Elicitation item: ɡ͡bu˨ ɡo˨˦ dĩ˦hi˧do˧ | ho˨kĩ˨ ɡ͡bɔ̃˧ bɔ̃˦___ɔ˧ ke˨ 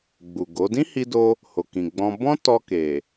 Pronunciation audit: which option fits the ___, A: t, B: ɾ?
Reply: A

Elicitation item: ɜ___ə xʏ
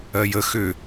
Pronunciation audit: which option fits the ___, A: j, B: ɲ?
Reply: A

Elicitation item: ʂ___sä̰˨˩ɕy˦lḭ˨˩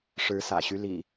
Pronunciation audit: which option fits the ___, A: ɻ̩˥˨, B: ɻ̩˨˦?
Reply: B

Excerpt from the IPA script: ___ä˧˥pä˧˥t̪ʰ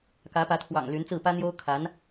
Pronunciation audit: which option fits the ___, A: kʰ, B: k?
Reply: B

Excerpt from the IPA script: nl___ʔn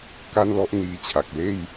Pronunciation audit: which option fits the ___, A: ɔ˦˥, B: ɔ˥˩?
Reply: B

